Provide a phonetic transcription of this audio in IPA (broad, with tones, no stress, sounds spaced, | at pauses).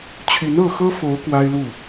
t͡ɕʰ y˨˦ n ɤ˥˨ x ɤ˦ f o˨˦ ʊ̯ k w a˦ ɪ̯ l u˥˨